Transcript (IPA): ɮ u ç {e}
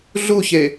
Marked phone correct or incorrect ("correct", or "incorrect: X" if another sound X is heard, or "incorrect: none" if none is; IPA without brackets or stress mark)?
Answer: correct